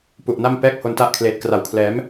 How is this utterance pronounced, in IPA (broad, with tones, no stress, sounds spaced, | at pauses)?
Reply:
p u˨˩ ʔ n a˥˩ m p ɛː˥˩ k̚ h o˧ n t a˥˩ ʔ kʰ l eː˨˩ t̚ k r a˨˩ w kʰ l ɛː˩˦ m